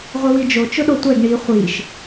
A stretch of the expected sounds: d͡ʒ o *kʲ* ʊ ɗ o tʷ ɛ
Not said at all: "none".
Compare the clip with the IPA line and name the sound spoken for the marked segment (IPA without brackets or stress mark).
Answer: t͡ʃ